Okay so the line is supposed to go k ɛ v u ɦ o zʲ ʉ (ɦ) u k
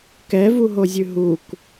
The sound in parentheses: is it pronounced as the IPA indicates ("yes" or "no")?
yes